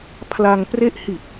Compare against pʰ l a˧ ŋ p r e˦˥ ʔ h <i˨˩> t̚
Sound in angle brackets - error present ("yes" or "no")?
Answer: no